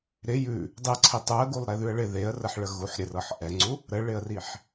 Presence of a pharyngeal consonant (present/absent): present